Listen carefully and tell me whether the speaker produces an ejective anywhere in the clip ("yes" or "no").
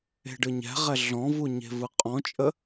yes